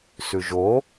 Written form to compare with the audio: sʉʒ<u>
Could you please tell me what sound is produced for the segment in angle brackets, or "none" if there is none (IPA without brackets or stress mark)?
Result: o